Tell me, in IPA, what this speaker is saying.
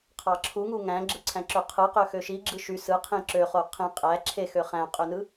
qʰ ɑ ǁʰ u ŋ u ŋ æ̃ ɡ͡ǁ ɯ ǀʰ æ̃ ǁ ø qʰ ɯ q ø x ø ʃ i ɡ͡ǁ ɯ ʃ y s ɯ qʰ ĩ ǁ ø χ o qʰ ĩ qʼ æ ǁʰ e x ø χ æ̃ qʼ ø n ɯ

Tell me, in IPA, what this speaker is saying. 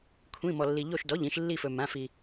kʷʰ ĩ˧˥˧ m ɔ˧ lː i˧ ʎ o˥˧ ʃ d ɔ˧˥˧ ʎ ĩ˥˧ ʃ lː i˥˧ f ɵ˧ m ã˧˥˧ f i˧

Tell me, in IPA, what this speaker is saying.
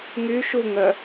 ŋ y ʃ u ŋ œ

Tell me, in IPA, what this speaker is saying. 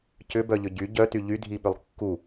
c ʏ b œ ʎ ʏ ɟ y ɟ œ t y ʎ y dʱ i ɓ ʏ lˠ kː u

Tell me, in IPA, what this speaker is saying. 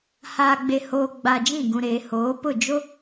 h aː˨ ɡ͡b e˨ h oː˨ ɡ͡b a˨ d͡ʒ ĩ˦˨ ɡ ũ˨ ɾ eː˨ h oː˨˦ p ʊ˦˨ d͡ʒ o˦

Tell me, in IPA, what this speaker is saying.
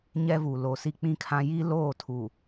ɲ ɛ˦ v u˨ l o˨ s i˦ k͡p ĩ˦ kʰ ã˦ j i˦ l oː˦˨ tʰ u˨

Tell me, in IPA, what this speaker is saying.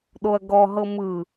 ɗ o ɐ̯ ɡ ɔ ɦ ɤ m ɯ

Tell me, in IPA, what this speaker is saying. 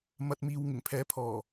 m ɐ˧ t̚ m iː˧ w ŋ ɪ˨˩ ŋ pʰ ɛː˨˥ pʰ ɔː˨˩

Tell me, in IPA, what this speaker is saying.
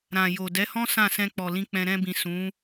ɾ ã˨ j o˨ d ɛ˨˦ h ɔ̃˦ s ã˦˨ s ɛ̃˧ k͡p ɔ˨ l ĩ˧ k͡p ɛ̃˧ ɾ ɛ̃˧ b ĩ˨ s ũ˨˦

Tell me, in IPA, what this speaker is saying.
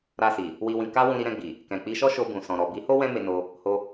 ɾ a˧ s i˨ | w i˨ w ĩ˨ k a˧ w ũ˧ ɾ i˧ ɾ ɛ̃˧ ɡ͡b i˨ | k ɛ̃˨ k͡p i˧ ʃ ɔ˦ ʃ o˧ b ũ˨ s ɔ̃˨ ɾ ɔ˨ b i˨˦ h o˦ w ɛ̃˦ m e˧ n o˧ | h o˧

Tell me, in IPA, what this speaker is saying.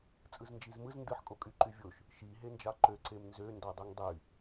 t͡sʼ ɯ z n d͡ʒ i z m ɯ z n d ɯ ħ kʼ o kʼ y ǃ y vʲ o ʃ | ʃ i ɦ e n d͡ʒ ɑ ǃ ø ǀ e m n z ø n d ɑ dˤ u ŋ dˤ y

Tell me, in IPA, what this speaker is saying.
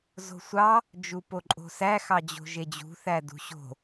z o̤ sʷ ɑ | d͡ʒ u p o ǃʼ o̤ s æ x ɑ d͡ʑ o̤ ʒ e d͡ʑ ṳ θ æ d ṳ ɕ o̤

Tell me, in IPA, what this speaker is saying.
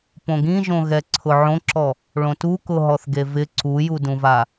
p õ ɡ ĩ ʒ õ ɣ ɛ ǀʰ ʊ ʕ õ ǁ ɔ | ɭ õ t u k ʊ ɦ ɔ θ ɡ e v ɪ ǀ u j u d ũ v a

